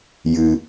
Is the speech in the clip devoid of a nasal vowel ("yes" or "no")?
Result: yes